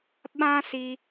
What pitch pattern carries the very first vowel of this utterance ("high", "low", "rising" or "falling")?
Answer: high